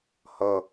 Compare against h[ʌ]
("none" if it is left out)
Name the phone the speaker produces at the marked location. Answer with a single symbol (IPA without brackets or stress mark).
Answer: ʌ